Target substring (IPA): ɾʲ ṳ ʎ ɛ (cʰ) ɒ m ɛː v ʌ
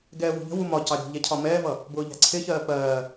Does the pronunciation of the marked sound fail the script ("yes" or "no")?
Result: no